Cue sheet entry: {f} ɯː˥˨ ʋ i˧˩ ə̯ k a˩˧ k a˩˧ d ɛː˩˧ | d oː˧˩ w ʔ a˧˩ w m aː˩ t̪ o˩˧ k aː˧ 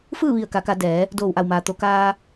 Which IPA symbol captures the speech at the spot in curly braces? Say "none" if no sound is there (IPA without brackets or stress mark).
f